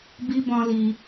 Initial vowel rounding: unrounded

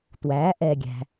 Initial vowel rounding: unrounded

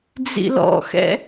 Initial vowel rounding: unrounded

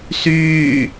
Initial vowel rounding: rounded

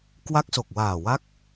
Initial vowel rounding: unrounded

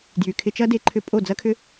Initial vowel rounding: rounded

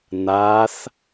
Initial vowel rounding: unrounded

